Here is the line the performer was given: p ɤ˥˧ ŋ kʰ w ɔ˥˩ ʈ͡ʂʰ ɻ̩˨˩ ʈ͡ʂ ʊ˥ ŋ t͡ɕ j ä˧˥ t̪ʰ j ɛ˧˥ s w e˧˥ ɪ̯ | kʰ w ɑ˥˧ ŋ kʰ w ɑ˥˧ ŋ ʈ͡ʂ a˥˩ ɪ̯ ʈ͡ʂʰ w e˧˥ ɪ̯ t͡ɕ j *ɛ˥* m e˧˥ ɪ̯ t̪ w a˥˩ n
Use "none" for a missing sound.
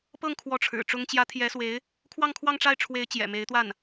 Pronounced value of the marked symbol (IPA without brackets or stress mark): ɛ̰˨˩